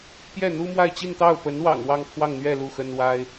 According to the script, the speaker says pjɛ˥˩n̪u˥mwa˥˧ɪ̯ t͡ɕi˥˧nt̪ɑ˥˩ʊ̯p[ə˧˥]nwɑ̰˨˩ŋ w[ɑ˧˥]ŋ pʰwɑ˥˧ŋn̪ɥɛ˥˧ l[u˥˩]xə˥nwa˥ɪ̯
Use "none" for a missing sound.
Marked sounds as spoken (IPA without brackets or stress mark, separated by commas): ə˧˥, ɑ˥˧, u˥˩